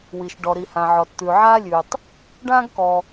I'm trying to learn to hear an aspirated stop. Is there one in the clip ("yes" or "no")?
no